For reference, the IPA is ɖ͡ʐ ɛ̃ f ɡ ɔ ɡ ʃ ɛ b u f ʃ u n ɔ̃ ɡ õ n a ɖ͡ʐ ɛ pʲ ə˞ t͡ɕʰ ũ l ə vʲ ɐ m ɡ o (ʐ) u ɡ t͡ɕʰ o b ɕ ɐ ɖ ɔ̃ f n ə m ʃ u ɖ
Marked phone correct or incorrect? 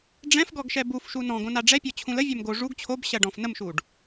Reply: correct